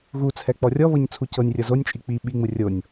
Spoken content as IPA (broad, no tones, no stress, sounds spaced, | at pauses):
ɣ u t͡sʰ ɛ k͡p ɔ rʲ ɔ β ɤ ɲ t͡sʰ u c ɤ nʲ rʲ ɤ z o nʲ t͡ʃʼ i k͡p i ɓ i ŋ͡m ɯ rʲ o nʲ